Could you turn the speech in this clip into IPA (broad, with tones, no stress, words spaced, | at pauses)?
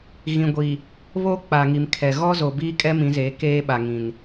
ɣĩ˨ɡʷiː˨ | βo˦k͡pa˨ŋi˨mkʰɛ˨ ɣɔ˦zo˨ biː˦kʼɛ˦mĩ˨˦zeː˨˦ keː˦ɓa˨ ŋĩ˨n